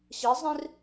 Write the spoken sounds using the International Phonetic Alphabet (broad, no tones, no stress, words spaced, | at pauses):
ɕizˤĩr